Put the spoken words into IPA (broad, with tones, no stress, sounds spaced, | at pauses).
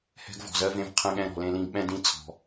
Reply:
h ɛ̤˦ ɡ v ɔ̤˧ z ɜ˧ v ẽ˧ v qʰ ɛ̃˧ ɠ ɛ̃˧ ɾ ɔ̤˨ l ẽ˧ l ĩ˧ ɡ ɓ ɛ̃˦ d ĩ˦ t͡sʰ ɔ̤˨